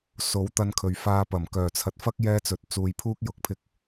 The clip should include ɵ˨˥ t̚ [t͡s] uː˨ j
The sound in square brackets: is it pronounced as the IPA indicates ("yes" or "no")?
yes